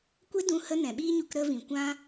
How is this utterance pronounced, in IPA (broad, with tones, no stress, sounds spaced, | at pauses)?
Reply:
kʷ e˦ d ũ˧ h ə˧ n ɛ̃˨ ɓ iː˦ ɲ u˧ k ɾ ə˧ v ĩ˨ kʷ ã˦